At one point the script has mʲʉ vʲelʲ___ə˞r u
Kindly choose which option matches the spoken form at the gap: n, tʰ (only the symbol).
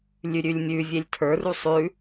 tʰ